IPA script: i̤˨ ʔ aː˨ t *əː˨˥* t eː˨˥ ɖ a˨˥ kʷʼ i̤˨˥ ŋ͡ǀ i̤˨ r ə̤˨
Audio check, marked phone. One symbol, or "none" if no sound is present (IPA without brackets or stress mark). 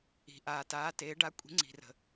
aː˨˥